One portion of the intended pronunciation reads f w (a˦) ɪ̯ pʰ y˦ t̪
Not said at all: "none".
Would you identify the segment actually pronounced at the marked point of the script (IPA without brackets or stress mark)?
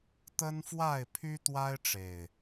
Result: a˥˨